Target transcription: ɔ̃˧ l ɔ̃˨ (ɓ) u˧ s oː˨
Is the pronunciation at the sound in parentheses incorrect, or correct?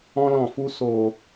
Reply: incorrect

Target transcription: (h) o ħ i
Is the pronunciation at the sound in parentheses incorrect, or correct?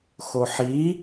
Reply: incorrect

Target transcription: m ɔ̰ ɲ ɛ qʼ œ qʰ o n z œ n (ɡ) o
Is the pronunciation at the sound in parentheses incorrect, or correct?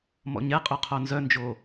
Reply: incorrect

